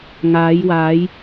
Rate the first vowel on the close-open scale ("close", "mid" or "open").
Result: open